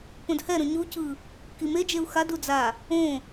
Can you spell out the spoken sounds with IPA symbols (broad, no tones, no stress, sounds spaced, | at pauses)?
p õ d h ɛ ɾ õ ɲ u c ɯ | k i m e d͡ʒ e u̯ x a d u d͡z a | õ